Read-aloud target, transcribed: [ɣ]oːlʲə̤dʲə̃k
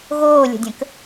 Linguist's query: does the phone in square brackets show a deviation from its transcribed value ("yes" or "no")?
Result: no